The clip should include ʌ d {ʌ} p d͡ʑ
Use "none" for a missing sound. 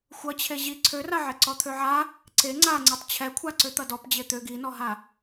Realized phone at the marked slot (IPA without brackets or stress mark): ɔ